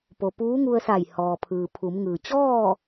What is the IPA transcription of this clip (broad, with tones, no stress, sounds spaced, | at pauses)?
p o˩ p uː˧˥ ŋ u˧ ə̯ s a˧˩ j h ɔː˩ pʰ ɯː˩ pʰ u˩˧ m ŋ ɯː˩ t͡ɕ ɔː˥˨